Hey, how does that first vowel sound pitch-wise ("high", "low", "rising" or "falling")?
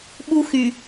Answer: high